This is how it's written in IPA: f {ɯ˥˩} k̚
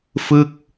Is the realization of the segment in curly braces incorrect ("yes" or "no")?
no